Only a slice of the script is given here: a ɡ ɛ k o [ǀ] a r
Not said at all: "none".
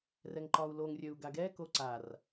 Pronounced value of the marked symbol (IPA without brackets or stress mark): ǀ